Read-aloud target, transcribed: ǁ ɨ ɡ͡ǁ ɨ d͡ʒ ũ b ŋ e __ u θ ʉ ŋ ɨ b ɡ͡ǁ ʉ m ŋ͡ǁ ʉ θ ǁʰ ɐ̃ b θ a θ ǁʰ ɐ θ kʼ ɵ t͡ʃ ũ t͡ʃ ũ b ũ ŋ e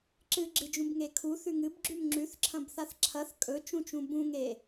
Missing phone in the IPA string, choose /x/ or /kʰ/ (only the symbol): kʰ